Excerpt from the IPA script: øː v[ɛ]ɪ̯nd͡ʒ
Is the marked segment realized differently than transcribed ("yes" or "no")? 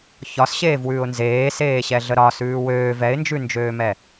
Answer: no